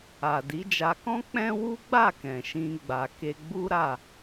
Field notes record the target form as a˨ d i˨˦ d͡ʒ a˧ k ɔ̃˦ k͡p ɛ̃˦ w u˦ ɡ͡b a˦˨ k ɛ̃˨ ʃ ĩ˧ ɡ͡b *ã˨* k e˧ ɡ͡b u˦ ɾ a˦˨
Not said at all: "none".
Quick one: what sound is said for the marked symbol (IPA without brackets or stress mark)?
a˨